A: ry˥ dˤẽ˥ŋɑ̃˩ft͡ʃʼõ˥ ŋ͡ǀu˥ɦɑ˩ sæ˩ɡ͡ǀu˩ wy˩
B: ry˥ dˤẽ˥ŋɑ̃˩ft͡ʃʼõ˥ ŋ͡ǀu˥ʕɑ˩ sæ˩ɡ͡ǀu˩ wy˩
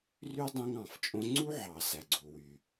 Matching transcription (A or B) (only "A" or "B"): B